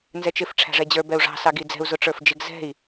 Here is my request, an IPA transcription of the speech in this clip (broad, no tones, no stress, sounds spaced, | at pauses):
n z ɛ t͡ʃ ɪ f ʈ͡ʂʰ æ̤ ʐ ɛ d͡ʑ ə˞ b ɛ u̯ ʐ ɑ̤ s ɑ ɡ i d͡z ɛ̤ u̯ z ʊ ʈ͡ʂ ə˞ f d͡ʒ ɪ ɡ z ɛ̤ i̯